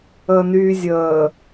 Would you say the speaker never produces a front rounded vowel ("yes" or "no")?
no